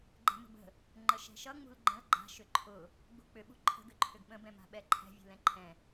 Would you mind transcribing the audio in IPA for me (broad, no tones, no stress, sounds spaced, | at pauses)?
ɡ͡ǃ ɛ̤ m ə̤ b ə̤ | ŋ͡ǃ ə ʃ ɛ̤ ʃ ʌ ŋ͡m ṳ l ɡ͡ǃ ə̃ l ɡ͡ǃ a̤ ʃ ʏ ǃʰ ʊ | ɡ͡b ṳ k͡p ʏ ɓ ṳ ǃʰ ə̤ ɡ ʏ ǃʰ ʏ ɡ ɓ ə̃ b ɛ̃ m a̤ ɓ ɛ ǃʰ ɛ̤ vʲ ṳ l ɛ̃ ǃʰ ɛ̃